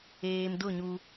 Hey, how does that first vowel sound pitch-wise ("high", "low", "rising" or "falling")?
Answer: low